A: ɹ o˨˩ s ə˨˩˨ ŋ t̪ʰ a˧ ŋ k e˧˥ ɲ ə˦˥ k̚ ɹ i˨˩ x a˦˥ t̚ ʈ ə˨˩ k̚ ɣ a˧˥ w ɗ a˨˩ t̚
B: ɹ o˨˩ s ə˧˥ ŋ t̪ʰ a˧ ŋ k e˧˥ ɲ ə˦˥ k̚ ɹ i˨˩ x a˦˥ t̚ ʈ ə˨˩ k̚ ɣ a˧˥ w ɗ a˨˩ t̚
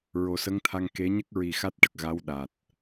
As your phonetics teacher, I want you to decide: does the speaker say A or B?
B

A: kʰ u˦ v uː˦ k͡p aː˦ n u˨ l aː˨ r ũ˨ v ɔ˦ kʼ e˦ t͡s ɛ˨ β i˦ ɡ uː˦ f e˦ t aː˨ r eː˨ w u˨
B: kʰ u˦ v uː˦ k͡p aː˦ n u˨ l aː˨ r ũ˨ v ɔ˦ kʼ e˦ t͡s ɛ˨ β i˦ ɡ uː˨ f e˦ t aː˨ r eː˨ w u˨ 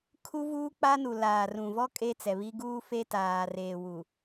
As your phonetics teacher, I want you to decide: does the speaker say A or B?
A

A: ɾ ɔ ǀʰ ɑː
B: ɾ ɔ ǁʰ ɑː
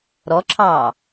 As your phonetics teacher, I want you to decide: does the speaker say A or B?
B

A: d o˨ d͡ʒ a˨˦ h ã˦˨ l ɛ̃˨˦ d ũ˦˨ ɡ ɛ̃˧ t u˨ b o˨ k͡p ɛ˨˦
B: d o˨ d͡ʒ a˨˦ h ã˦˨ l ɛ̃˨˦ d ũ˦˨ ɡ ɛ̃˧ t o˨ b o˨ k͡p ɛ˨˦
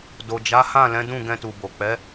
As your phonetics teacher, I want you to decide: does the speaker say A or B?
A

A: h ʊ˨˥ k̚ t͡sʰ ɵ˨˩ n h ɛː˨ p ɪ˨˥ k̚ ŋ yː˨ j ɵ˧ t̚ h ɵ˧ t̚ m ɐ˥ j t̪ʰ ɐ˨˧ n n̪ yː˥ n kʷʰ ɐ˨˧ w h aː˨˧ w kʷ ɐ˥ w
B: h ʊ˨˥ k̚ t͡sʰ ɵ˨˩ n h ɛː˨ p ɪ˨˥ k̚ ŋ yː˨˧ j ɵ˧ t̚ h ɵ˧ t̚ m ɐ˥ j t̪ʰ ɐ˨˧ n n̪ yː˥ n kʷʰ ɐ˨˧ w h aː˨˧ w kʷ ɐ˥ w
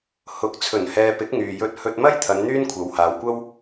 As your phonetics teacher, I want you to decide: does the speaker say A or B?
A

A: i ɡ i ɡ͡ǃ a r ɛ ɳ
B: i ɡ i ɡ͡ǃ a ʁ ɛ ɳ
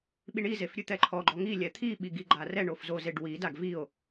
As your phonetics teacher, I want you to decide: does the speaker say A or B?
A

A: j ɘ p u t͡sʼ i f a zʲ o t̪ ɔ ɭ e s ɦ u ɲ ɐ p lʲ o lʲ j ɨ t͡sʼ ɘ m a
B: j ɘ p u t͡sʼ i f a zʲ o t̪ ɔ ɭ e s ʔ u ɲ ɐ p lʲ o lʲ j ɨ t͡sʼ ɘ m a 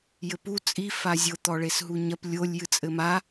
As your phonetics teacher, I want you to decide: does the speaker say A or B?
A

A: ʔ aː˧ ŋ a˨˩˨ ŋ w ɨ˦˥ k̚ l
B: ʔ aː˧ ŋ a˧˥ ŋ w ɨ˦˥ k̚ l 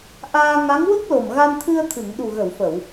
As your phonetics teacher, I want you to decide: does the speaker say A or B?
B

